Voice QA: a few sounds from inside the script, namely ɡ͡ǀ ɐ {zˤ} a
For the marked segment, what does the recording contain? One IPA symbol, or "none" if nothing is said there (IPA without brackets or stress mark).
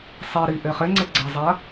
zˤ